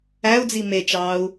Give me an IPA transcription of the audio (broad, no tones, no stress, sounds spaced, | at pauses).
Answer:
æ u̯ d͡z i m e t͡ʃ ɑː u̯